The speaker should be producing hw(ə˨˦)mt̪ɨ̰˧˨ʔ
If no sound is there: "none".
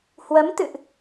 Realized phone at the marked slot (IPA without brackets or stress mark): ə˨˦